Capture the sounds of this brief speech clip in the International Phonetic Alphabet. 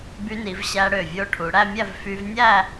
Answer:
by˧ni˩˧v ɕæ˧ɽø˧˩ vʲo˧ ʈʰu˩˧ɽæ˥˧mʲæ˥˧v fy˧vnʲæ˥˧

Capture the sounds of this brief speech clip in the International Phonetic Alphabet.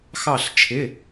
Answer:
xɑ˧˩ɬt͡ʃʰɪ˩˧˩

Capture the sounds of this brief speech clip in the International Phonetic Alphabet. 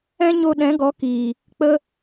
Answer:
ɛ̃˦ɲo˧ ɗɛ̃˨˦ɡɔ˨˦kiː˨ | k͡pə˧

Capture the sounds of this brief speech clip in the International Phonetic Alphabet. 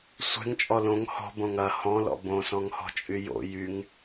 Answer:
sʷɛ̤ŋt͡ʃʼɔ lõŋ hɔ̤bõŋ ɐ hɔ̃lɔ̰ bõsɔ̃ŋhɔ̤t͡ʃʼy jo̰ jyŋ

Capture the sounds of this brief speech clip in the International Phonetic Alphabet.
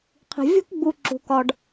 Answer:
qʰi̤˩vʲo̤˦kɡ͡bu˨ ǁṳ˩kɒ˨ɖ

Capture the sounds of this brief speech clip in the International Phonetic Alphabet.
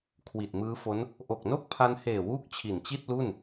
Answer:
kʰwi˨˩t̚mɯː˦˥fo˦˥n | ʔo˨˩k̚no˥˩k̚pʰa˧n heː˨˩wuː˦˥k̚ t͡ɕʰi˨˩nt͡ɕi˥˩t̚lu˥˩n

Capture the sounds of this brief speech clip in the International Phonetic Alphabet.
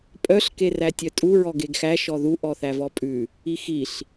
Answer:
pʼœɬ kerætʲœtʼu ɹɔɡeɡxæ ʃɔðu ʔɔθævɔpʼʉ | ixiɬ

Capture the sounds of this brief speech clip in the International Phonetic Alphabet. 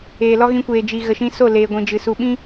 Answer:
eː˨lɔ˦ɣĩ˧kʷeː˨ d͡ʒi˨ ɣə˨ʃĩ˧ so˦˨leː˨ɡʷĩ˨d͡ʒɨ˨ su˨ɓĩ˦

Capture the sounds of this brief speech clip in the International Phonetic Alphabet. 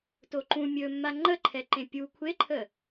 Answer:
toǃũ mʲɵmːa ŋ͡ǃəǃʰɛǃẽ pʲu kʷʰeǃʰə

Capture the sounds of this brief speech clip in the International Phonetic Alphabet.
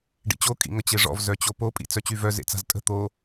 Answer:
ɖḭt͡ɕo kʼḭŋət͡ɕeʐɔ̰v zœt͡ɕopo pʼḭt͡sœt͡ɕyvœ zḛt͡sa̤ztʼə̤ t̪o

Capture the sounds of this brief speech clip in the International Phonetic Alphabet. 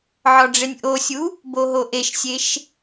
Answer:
ʕɒɖ͡ʐenʲʔosʲu | boɦoʔeʃsʲeʃ

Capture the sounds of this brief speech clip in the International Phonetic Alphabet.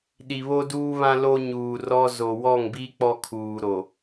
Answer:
ɗi˨βo˦duː˦βã˦ lo˦ɲuː˨rɔ˦ zo˨wɔ˦˨ŋbi˦ k͡pɔ˦kʰuː˨ ɾo˨

